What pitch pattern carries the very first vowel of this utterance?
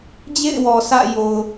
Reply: falling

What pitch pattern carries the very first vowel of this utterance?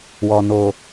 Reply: low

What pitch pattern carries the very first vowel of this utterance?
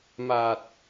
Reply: low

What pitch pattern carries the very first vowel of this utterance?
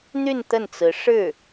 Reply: falling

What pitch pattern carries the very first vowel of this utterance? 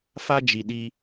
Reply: high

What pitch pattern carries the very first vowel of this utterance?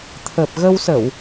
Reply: low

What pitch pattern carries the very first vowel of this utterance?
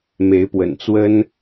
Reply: rising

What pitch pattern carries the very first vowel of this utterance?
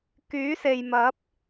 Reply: rising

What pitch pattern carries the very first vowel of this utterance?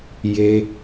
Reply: high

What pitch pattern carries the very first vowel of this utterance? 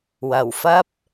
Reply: low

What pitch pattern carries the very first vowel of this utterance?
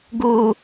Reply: low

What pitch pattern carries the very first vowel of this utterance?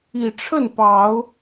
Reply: low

